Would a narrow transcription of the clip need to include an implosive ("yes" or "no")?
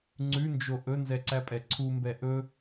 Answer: no